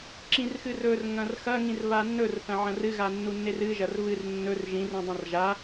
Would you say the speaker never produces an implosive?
yes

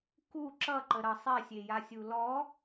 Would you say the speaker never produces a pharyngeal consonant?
yes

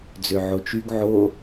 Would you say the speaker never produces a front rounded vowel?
no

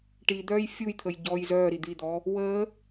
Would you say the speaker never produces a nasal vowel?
yes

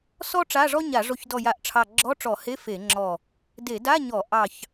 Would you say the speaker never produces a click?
no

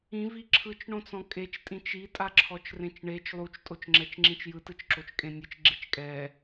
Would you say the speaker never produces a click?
no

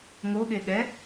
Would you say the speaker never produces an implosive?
no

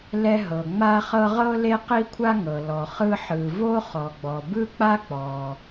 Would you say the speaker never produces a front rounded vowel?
yes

